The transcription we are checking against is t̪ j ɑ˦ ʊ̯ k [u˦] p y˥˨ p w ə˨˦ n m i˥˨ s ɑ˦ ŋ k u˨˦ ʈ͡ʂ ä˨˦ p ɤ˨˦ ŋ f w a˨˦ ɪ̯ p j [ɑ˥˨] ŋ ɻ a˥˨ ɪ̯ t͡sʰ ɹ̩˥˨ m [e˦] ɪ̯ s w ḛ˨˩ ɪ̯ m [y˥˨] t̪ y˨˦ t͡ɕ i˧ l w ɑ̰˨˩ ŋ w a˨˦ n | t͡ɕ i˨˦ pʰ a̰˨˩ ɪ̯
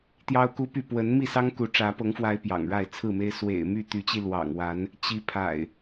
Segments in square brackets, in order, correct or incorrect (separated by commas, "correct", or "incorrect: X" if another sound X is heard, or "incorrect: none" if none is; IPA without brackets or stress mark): correct, incorrect: ɑ̰˨˩, correct, correct